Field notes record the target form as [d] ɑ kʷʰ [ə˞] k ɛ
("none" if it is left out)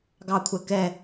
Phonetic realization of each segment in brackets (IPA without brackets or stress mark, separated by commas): ɡ, ɜ